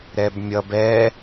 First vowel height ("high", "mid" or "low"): mid